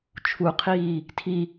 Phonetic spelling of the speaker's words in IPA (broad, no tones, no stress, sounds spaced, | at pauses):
t͡ʃʰ u qʰ iː | tʰ i